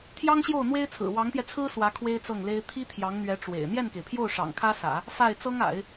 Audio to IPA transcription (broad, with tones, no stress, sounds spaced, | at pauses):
t̪ʰ j ɑ˥ ŋ ɕ j o˥˩ ʊ̯ n̪ w e˥ ɪ̯ t͡sʰ ɹ̩˨˩ w ɑ˧˥ ŋ t̪ j ɛ˧ t͡sʰ ɹ̩˥ s w ä˧˥ kʰ w e˥ ɪ̯ t͡s ɤ˥˩ ŋ l e˥ ɪ̯ t̪ʰ i˥ t̪ʰ j ɑ˧˥ ŋ n̪ ɥ ɛ˧˥ ʈ͡ʂ w ḛ˨˩ ɪ̯ n̪ j ɛ˥˩ n k e˩ ɪ̯ pʰ j o˥˩ ʊ̯ ʂ ɑ̰˨˩ ŋ kʰ ä˥ s ä̰˨˩˦ | f a˥˩ ɪ̯ t͡s ɤ˥ ŋ a̰˨˩˦ ɪ̯